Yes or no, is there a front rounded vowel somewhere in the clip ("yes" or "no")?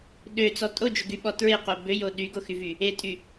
yes